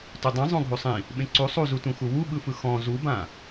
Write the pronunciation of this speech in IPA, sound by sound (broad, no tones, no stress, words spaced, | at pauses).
tudˤĩ zˤõɡʱusˤĩ | ɓẽǀu sˤuzutũxu wuɓɯfɯ xɔ̃ zubã